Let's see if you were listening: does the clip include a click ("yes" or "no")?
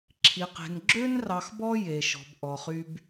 yes